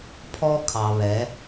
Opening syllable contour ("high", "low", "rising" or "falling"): high